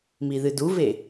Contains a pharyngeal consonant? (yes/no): no